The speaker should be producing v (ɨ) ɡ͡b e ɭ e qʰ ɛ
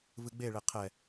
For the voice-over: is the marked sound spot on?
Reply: yes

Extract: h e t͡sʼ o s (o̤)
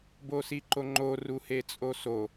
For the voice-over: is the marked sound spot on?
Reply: no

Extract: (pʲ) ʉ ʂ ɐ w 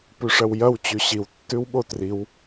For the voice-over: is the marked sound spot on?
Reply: no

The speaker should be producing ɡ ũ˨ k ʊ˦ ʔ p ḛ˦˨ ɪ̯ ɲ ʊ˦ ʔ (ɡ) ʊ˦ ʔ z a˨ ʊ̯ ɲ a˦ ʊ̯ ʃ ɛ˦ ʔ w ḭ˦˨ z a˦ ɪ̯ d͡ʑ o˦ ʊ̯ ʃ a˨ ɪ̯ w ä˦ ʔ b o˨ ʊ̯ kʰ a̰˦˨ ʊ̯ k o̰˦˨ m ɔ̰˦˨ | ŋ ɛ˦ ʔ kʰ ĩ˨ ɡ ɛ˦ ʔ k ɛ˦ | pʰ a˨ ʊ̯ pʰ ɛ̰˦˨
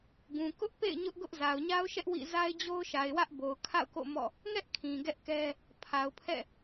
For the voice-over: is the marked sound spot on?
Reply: yes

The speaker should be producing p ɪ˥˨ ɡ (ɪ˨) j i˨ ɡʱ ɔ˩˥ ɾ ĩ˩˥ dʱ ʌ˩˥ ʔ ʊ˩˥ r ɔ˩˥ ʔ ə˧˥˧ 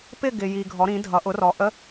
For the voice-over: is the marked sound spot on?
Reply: yes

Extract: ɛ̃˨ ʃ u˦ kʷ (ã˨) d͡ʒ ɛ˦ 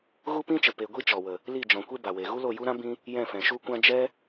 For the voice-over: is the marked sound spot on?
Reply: no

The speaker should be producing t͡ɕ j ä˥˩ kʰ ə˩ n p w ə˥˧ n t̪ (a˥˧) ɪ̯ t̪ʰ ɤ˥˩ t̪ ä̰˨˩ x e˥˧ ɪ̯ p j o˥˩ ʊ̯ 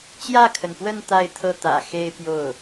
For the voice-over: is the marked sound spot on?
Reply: yes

